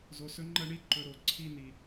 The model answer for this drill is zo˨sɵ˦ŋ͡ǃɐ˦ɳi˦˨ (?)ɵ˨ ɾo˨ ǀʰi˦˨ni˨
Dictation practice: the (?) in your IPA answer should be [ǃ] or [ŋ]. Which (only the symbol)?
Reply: ǃ